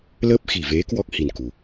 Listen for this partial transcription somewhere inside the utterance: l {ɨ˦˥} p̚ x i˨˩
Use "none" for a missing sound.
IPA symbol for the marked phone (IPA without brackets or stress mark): ə˦˥